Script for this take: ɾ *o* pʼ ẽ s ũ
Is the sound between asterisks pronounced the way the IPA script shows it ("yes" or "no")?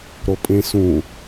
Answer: yes